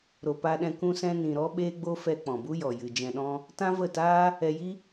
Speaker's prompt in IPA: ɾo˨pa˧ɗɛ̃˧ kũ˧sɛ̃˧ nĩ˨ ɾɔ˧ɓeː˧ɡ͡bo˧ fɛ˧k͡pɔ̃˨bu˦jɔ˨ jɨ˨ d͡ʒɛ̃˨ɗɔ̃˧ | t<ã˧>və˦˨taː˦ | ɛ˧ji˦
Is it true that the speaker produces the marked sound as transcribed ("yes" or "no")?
no